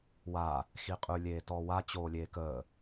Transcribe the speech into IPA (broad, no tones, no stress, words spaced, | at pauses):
wa | xiqʼʉ lʲeːtɔwa t͡ɕoːlʲeːkəː